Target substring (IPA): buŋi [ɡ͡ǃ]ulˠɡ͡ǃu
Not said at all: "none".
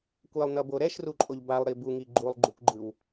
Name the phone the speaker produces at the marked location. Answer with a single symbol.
ɡ͡ǃ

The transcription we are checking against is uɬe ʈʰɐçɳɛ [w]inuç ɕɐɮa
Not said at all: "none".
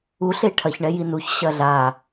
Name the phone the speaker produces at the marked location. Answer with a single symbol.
j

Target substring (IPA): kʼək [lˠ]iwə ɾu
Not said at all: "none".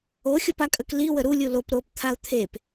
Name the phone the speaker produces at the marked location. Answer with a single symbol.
l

